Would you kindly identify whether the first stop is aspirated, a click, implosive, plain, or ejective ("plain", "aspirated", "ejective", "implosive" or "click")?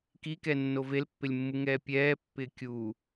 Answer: plain